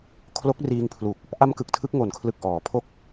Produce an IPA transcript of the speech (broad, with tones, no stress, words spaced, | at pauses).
kʰlo˦˥k̚riː˧ŋpʰlu˨˩k̚ | ʔa˧mkɯ˨˩k̚ tʰɯ˦˥k̚ŋo˨˩nkʰlɯ˨˩k̚ ʔɔː˩˦pʰo˥˩k̚